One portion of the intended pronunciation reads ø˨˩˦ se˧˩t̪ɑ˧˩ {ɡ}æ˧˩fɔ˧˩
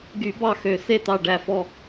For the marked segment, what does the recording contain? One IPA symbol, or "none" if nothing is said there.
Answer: ɖ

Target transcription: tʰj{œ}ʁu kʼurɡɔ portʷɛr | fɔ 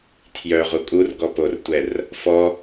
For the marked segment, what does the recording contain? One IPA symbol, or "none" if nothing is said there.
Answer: œ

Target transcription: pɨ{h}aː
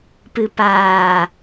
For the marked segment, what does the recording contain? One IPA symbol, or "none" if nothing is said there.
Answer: p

